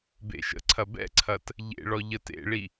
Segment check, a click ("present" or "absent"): present